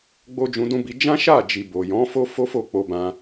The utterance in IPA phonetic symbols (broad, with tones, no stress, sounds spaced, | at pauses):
ɡ͡b o˦ d͡ʒ ũ˧ d ũ˦ b i˧ d͡ʒ ã˦ ʃ a˦˨ d͡ʒ i˨ b o˨ j ɔ̃˨˦ f o˦ f o˦ f o˦˨ k͡p o˧ b ã˧